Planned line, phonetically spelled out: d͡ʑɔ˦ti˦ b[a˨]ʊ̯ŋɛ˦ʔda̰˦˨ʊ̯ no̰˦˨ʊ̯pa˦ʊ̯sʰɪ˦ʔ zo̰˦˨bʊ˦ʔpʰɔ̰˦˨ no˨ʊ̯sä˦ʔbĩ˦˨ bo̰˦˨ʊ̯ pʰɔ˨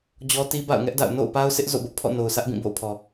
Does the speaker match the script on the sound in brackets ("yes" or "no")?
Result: no